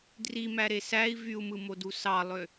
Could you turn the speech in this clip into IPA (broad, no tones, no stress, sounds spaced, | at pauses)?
d r i m æ ɾ e s æ i̯ v y u̯ m ɯ m o d u s ɑ lˠ ø